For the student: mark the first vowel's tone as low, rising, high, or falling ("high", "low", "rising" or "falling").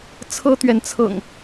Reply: high